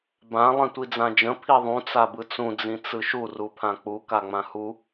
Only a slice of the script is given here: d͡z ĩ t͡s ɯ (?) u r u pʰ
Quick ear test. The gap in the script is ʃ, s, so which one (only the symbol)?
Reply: ʃ